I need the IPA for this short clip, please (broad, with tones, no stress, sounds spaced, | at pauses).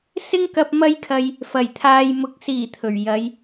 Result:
s ɪ˥ ŋ k ɐ˧ p̚ m ɐ˥ j kʰ ɐ˧ j | f ɐ˨˩ j t̪ʰ aː˨ j m ʊ˨ k̚ s iː˨˩ t̪ʰ ɵ˨˩ ɥ j ɐ˨˧ j